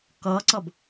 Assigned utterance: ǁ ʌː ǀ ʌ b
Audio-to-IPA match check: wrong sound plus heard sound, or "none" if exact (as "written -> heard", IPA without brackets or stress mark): ǁ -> k